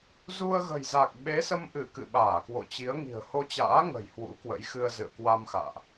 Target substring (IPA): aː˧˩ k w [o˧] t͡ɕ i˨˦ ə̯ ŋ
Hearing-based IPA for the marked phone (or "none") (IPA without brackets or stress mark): o̰˧˨